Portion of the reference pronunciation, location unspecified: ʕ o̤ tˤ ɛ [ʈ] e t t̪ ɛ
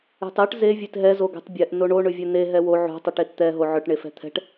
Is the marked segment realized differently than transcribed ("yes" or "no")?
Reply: no